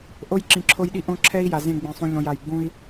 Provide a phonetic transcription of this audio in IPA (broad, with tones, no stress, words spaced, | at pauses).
ʔo˦jǁĩ˨ǁʰo˦jɗi˦ ʔõ˦ǁʰɛ˦i̯ja˨zẽ˦˨ ɡ͡bẽ˨sˤũ˨ ʎõ˨ja˨j ɡ͡bũ˦i̯